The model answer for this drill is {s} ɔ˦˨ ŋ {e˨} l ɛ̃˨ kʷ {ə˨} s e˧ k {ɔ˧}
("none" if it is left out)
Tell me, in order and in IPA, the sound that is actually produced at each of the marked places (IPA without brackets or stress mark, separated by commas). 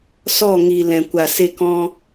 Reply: s, i˨, a˨, ɔ̃˧